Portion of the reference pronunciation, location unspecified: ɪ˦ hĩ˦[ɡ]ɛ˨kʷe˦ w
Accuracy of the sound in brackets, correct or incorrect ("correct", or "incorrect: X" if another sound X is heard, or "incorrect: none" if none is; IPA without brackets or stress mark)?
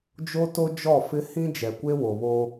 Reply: incorrect: d͡ʒ